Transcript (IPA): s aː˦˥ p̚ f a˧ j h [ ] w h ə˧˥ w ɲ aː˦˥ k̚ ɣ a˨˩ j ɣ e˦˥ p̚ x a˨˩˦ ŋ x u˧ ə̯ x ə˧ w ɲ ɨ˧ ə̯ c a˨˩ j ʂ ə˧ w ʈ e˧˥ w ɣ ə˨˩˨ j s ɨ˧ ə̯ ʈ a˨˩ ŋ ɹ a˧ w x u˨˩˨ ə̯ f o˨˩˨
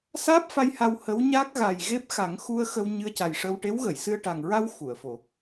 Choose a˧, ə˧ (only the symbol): a˧